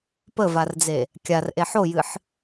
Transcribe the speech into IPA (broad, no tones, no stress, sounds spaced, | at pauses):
p ə v a r d͡z e | kʲ a r ʔ e ħ o j ɨ ħ